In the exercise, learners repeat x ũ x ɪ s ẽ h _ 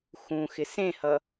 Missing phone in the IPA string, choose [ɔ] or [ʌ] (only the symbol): ʌ